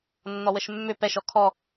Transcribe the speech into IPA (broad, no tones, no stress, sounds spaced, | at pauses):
nː ɔ w ə ʃ mː ʏ p ɛ ʃ ɔ kʰ ɔ